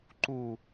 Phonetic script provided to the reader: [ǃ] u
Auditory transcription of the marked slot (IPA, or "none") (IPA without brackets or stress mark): ǃ